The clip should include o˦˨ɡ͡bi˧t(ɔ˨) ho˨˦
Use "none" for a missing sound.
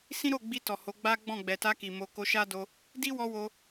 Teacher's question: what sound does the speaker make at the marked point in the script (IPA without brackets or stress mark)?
ɔ˨